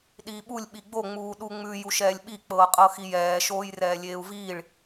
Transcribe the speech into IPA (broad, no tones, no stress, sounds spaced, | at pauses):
ɗ iː ɓ u lʲ ɓ i ɡ͡b o ŋ͡m uː ɗ u ŋ͡m ʉ j u ʃ ɛː lʲ ɓ i k͡p ɤː qʼ ɤ x i j ɛː ʃ oː j r ɛː lʲ eː u̯ v iː ɭ